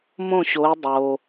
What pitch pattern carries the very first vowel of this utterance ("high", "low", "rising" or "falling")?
falling